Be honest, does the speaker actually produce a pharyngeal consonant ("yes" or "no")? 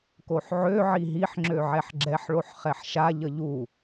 yes